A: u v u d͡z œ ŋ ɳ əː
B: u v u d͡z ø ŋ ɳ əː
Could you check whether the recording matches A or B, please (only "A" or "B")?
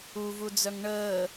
A